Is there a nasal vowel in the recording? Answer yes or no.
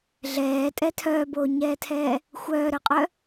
no